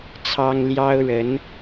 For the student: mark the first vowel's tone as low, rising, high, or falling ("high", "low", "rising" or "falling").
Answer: high